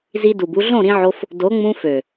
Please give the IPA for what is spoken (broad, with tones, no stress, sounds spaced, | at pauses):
z i˧ d u˨ b u˧ ɮ õ˦˨ ɾ ĩ˧ ʕ o˧ f | d o˨˦ ŋ͡m ũ˧ f ø˨